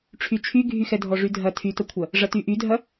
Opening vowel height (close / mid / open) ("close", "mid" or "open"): close